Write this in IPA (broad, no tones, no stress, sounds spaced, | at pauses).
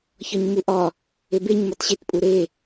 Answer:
ç ɒ ɲ m u ʔ ɒ | e b e ɲ m ɒ t ɕ e t pʼ u ɾ e